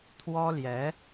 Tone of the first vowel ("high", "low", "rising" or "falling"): high